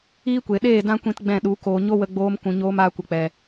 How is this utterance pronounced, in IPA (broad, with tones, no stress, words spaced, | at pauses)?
iː˦kʷe˨ ɗeː˦˨dã˦kʷĩ˧t ɡ͡bɛ̃˦˨ɗu˨˦koː˧ ɲo˦wə˧ ɡ͡boː˧mkũ˨ɲoː˧m aː˧kʷə˨k͡pɛ˨